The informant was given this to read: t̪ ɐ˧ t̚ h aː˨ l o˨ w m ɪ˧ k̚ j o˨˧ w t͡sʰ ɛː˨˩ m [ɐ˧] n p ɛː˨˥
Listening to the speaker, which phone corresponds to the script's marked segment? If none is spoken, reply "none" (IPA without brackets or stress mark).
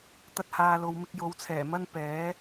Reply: ɐ˥